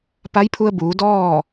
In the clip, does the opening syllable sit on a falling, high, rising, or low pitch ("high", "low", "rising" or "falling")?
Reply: rising